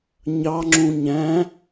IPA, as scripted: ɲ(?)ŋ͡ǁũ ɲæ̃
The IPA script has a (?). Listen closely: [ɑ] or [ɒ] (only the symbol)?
ɑ